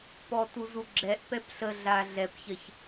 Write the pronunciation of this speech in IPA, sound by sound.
p ɔ t u z u ɡ͡ǁ ɛ ʔ p ɛ p ɬ ə ɮ a ɮ ɛ p ç ɜ ç

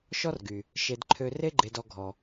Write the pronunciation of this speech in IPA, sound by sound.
ʃ ɔ˦ r ɡ y˨ | ʃ e˧ d ǃʰ ø˧ r e˦ ɡ͡ǃ e˨ d ɔ˨ ɡʱ ɔ˨

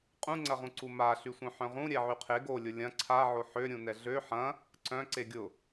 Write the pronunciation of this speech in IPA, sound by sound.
qʼ ũ ŋ͡ǀ ɐ ʁ ũ ǀ u m a ɬ y sʷ œ̃ ħ œ̃ ʁ ũ ɾʲ ɛ ʕ y qʰ e ɡ o lʲ ʊ lʲ ɐ̃ ǀʰ a ʕ o ħ ø ɾʲ ũ n ɛ ɮ ø ħ ɐ̃ | ǀ œ̃ ǀ e ɡʲ ʊ

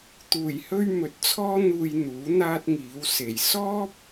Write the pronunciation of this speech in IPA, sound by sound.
t̪ uː˨˩ j h ɵ˧ ɥ m ɵ˨ t̚ t͡sʰ ɔː˥ n̪ uː˧ j n̪ uː˨˥ n̪ aː˥ t̚ ŋ iː˨˥ w s e˨˩ j s ɔː˥ p̚

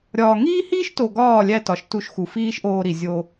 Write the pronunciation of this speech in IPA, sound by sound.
ɾʲ ɒː˨ ŋ iː˦ h iː˦ ʃ t o˨ ɡ ɒː˦˨ lʲ æ˧ t ɒ˨ ʃ t u˧ ʃ x u˨ f iː˦ ʃ ʔ oː˧ ɾ i˨ zʲ o˧

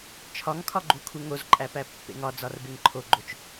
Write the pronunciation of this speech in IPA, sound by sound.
t͡ʃʰ ɒ ŋ kʰ ɒ ɡ͡ǃ u kʰ u ŋ o z ǃʼ æ p æ pː ḛ ŋ ɒ d͡z ɒ r b e ŋ ǃʰ o ɡ͡ǃ o t͡ʃ

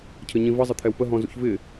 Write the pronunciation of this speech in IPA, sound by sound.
cʰ ə ɲ ĩ v ə zˤ ə t̪ʰ ɛ w p ə ɦ ɔ̃ z ṵ ç v ɪ

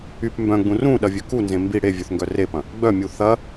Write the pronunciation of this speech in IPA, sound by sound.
y p m b œ̃ ɡ͡b ũ r ũ ɗ ɐ vʲ ø k u n z ẽ m b i ɽ e vʲ ø θ ŋ ɡ œ r e p ɐ̃ | ɡ͡b œ mʲ u θ ɐ

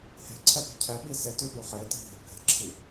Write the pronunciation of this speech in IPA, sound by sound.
h e̤ ǀʰ ɛ p i̤ cʰ ɛ ɓ i s e t ʉ ɓ ʉ χ e t i̤ ɦ e̤ bʱ ɛ̤ ǁʰ i

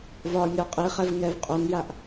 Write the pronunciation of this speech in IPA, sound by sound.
v ɒ nʲ ɒ qʼ i χ ɛ v ŋ ɛ v qʼ o n j a ʔ

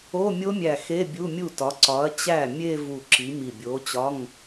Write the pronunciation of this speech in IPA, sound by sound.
o˧˥˧ mʲ o˦˥ mʲ æ˧˩ x e˧˥˧ bʲ u˧˥˧ mʲ u˥˩ t ɒ˨˥ ǀ ɒ˨˥ ɐ̯ t͡ɕ æ˥˩ mʲ e˥˧ v u˧˩ ǁ i˨˥ m i˧˩ bʲ o˨˥ t͡ɕ ɒ˧˥˧ ŋ

